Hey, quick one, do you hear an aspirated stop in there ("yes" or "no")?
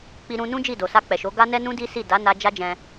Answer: no